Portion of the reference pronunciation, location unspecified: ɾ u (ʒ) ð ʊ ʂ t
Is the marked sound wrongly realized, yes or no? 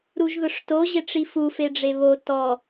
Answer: no